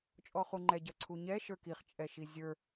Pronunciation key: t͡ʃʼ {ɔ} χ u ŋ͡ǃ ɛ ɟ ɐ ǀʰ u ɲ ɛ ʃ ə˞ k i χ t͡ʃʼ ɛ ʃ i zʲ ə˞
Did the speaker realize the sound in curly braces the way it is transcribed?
yes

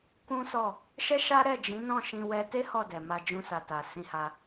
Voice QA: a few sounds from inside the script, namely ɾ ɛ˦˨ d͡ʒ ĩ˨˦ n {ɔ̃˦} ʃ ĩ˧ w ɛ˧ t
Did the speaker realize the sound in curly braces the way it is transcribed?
no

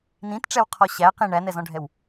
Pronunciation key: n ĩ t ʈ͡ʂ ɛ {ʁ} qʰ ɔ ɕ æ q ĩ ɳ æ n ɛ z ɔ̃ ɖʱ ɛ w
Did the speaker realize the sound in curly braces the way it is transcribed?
no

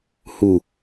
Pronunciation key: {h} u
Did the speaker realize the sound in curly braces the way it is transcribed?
yes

